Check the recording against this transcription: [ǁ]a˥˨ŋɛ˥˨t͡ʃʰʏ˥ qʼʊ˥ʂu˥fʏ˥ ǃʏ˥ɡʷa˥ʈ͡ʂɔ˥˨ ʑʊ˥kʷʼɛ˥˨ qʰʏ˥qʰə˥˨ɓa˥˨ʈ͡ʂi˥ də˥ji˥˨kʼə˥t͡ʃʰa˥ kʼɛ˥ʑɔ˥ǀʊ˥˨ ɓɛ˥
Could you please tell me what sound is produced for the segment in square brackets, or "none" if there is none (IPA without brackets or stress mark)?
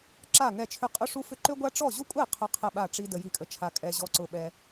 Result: ǁ